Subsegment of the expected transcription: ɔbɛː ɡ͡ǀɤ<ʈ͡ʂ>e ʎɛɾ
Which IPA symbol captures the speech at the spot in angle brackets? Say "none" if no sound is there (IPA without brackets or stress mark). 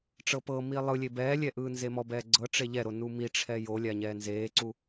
ʈ͡ʂ